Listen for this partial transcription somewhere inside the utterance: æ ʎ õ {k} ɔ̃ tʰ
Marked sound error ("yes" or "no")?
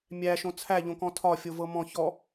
no